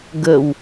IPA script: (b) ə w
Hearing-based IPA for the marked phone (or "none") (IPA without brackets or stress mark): ɡ